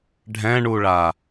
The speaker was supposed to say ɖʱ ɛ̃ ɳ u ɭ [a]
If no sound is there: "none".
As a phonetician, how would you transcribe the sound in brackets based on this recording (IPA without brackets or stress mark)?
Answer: a